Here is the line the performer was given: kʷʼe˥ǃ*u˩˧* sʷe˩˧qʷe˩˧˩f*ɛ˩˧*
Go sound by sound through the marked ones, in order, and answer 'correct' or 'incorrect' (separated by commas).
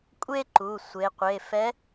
incorrect, incorrect